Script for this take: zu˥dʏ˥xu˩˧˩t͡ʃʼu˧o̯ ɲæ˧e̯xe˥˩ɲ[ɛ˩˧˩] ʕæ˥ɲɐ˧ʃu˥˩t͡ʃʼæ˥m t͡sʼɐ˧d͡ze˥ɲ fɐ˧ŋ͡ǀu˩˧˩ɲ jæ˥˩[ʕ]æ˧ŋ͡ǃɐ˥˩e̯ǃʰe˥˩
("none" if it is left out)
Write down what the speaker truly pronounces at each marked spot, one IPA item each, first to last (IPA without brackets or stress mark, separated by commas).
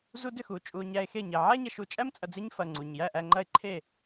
ɛ˩˧˩, ʔ